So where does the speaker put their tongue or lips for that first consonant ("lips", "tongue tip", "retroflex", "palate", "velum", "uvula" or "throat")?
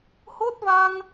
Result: throat